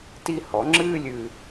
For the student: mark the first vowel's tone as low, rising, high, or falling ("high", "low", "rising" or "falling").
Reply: high